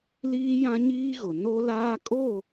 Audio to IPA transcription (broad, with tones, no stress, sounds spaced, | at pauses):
l iː˦ j ã˦ ɲ iː˦ ɣ ʊ˨ n o˦ l aː˦ kʼ o˦˨